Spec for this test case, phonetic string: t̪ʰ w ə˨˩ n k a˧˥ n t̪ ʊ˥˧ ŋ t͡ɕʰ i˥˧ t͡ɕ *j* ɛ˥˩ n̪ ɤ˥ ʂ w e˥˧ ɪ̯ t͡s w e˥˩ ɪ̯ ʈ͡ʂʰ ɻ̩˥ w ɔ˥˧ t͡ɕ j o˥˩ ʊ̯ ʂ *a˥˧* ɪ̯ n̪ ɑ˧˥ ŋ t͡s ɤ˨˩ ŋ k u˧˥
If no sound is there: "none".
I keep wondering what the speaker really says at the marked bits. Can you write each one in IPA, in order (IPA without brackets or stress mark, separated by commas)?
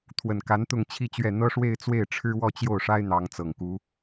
ɥ, a˥